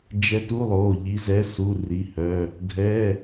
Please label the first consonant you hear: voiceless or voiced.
voiced